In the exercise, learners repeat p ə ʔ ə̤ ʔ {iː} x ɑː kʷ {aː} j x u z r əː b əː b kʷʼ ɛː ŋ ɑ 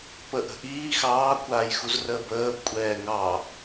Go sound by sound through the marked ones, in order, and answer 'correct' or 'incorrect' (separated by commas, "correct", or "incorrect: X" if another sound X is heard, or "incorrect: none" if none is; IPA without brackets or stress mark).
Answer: correct, correct